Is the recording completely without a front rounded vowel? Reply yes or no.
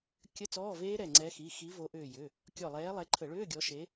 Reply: no